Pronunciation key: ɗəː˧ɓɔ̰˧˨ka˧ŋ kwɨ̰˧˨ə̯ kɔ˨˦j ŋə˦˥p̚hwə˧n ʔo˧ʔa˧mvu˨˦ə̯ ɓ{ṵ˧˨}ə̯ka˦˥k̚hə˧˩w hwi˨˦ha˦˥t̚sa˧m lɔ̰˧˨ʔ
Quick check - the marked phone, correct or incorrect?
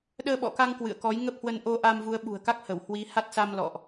incorrect